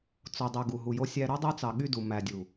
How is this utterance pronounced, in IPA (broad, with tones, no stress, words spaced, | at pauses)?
t͡so˨dˤy˨ ɡu˨ɦu˨jo˦sʲæ˦ ɾø˦dˤø˦t͡sɑ˨ ɠy˦du˨ mæ˨dʲu˨